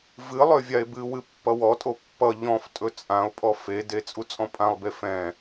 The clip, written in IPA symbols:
vɨ lˠøvʲae̯bɨwɨ pːʌwɔtʼo pːʌ ʎɔ̃ftʼɵ t͡sʼão̯pʼɔ fede t͡sʼut͡sʼɔ̃pʼãlˠbe fɛ̃

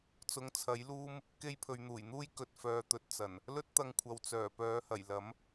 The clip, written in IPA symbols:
t͡sʊ˨ŋt͡sʰɐ˨˥jluː˥m | ke˧jpʰɵ˨ɥn̪uː˨˩jn̪uː˥j kɵ˨t̚ fœː˨t̪ɵ˨t̚t͡sɐ˨˩n | lɵ˥t̚t̪ɐ˧ŋkʷʰɐ˨w t͡sœː˨˩pœː˨˥hɐ˨˩j lɐ˨˥m

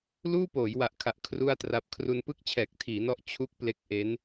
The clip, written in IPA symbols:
luː˥˩poː˩˦jwa˨˩ʔkʰa˨˩ʔ kʰru˥˩a̯tra˦˥p̚ kʰru˧npɯ˥˩k̚ t͡ɕʰɛː˨˩k̚tʰiː˩˦nɔ˦˥ʔ t͡ɕʰu˦˥k̚ ple˦˥k̚ ʔe˦˥n

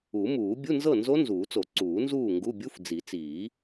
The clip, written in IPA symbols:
u˨˩˦muː˨˩˦ bʲu˧˥˧nzɤ˥˨nzo˦˥ nzuː˨˩˦t͡so˨˩˦ ǀuː˨˩˦nzuː˥˨ŋɡu˧˥˧ bʲu˧˥˧fd͡zi˨˩˦t͡siː˨˩˦

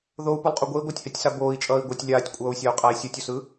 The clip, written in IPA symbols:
ðou̯pulˠqʼu ɡʷei̯ɡʷatʲhɛtʲsa boːi̯t͡ʃʼʌːi̯ ɡʷʌtʲ lʲaːtʲkʷʼʌːu̯sʲau̯qʼai̯ sʲotʲusɯ

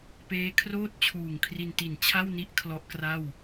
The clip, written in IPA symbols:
peː˦˥kʰroː˥˩t̚t͡ɕʰuː˨˩ŋ kʰri˧nti˨˩nt͡ɕʰa˥˩wni˦˥ʔ kʰlɔ˦˥ʔkra˥˩w

